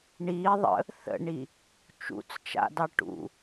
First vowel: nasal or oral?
oral